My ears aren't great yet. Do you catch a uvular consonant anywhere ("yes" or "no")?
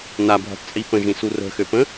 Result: no